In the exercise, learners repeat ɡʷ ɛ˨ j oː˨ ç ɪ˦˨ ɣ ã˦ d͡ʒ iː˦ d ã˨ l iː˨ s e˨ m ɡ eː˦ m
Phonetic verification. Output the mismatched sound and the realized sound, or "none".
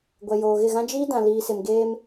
ç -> ɣ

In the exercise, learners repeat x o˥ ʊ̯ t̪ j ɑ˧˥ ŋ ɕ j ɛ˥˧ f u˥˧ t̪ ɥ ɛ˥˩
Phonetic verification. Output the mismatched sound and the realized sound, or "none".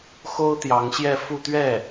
none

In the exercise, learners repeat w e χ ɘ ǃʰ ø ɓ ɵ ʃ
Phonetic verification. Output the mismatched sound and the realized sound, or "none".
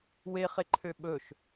ɘ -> e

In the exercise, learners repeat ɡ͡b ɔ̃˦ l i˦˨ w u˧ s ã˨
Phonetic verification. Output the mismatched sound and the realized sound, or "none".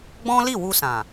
none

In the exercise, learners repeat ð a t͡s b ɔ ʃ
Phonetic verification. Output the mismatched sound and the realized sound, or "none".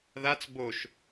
ɔ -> o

